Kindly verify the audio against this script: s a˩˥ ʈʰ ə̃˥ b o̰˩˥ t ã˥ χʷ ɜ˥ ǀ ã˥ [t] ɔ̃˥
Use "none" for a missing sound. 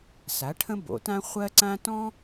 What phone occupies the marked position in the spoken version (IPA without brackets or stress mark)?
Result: t